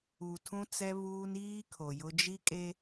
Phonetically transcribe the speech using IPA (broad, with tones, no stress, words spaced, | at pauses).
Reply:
u˨tʰũ˦t͡sɛ˦ βuː˦n iː˦kʰo˨jʊ˦ d͡ʒi˦kʼe˦